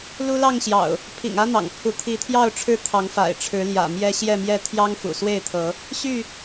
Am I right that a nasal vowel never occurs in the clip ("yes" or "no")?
yes